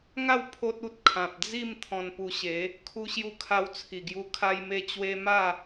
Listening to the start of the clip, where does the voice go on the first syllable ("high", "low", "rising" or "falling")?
falling